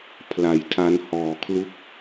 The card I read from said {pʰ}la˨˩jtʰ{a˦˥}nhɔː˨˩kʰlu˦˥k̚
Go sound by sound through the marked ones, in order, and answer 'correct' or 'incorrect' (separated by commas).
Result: correct, incorrect